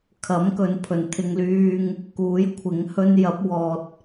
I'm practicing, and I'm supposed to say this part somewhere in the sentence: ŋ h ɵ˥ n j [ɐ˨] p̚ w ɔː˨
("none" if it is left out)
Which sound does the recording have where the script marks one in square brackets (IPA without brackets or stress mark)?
ɐ˨˥